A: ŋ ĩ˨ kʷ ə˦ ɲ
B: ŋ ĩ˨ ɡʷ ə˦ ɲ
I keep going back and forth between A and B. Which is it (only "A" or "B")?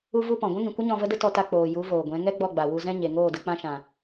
A